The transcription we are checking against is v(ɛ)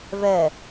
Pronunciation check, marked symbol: correct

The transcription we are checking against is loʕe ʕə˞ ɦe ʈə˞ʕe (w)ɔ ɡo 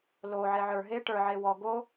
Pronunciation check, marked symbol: correct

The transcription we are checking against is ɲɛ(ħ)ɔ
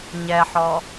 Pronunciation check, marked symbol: correct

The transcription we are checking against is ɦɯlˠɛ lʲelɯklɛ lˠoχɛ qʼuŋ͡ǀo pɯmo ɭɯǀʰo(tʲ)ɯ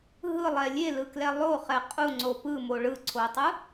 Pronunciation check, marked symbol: incorrect: tˤ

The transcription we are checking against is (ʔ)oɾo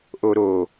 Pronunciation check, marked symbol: correct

